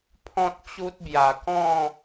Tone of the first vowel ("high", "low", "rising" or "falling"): high